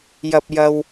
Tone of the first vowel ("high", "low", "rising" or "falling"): low